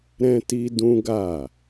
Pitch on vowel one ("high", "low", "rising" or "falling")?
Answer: high